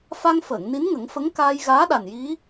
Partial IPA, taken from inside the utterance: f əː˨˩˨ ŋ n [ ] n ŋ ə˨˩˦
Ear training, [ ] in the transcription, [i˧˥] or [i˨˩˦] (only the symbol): i˧˥